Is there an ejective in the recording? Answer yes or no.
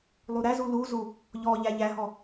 no